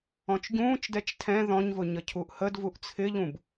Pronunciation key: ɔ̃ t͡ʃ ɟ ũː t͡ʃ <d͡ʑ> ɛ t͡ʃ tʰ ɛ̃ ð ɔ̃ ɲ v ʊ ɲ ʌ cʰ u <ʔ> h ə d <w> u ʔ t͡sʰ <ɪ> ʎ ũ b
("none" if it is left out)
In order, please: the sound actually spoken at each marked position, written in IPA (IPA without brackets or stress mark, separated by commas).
d, ʔ, v, ɪ